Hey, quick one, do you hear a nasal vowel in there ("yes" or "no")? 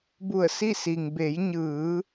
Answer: no